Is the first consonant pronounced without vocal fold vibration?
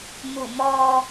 no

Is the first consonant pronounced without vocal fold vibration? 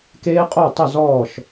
yes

